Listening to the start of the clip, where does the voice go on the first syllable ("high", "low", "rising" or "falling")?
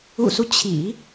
low